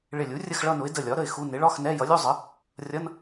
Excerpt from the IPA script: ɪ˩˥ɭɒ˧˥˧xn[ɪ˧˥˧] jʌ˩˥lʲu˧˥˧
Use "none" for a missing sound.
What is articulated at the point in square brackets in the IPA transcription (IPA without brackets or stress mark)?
ɛ˧˥˧